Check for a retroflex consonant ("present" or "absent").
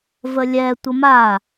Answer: absent